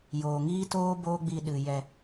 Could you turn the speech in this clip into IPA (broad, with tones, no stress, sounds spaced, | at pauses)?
j oː˨ ŋ iː˦ t oː˦ b oː˦ ɡ͡b i˧ ɗ ɨ˨ j ɛ˧